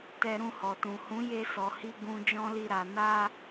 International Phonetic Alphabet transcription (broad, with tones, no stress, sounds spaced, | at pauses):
t ɛ˧ ɾ ũ˧ h ɔ˨ t ũ˨ h ũ˨˦ j e˦ s ɔ˧ h i˦ ɡ ũ˧ d͡ʒ ɔ̃˦ l i˦˨ ɾ a˧ n a˦